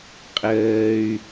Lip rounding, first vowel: unrounded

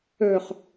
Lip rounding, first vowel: rounded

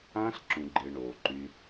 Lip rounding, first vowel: unrounded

